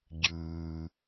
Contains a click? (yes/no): no